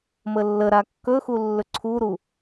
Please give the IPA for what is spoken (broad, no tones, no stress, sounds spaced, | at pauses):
m ə lː ə ɾ a kː ɵ x u lː ɵ ǀʰ u ɾ u